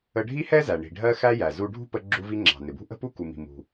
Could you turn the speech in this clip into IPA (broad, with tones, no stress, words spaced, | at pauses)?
ə˧ ɖʱi˥hɛ˥zæ˩ ɳi̤˩ɖʱɜ˧xæ˧ jæ˩ zu˧ ɖʱṳ˥pə˧ ɡ͡ǁu˧vi˧ ŋ͡ǁɑ̤˩nɪ˩bṳ˥ ʔə̤˥pu˥ ku˩mi̤˩mṳ˩